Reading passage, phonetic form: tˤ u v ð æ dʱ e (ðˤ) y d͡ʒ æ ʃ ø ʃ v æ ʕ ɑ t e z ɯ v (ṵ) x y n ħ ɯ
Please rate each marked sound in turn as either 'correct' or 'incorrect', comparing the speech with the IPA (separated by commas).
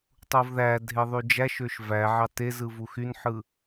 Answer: correct, incorrect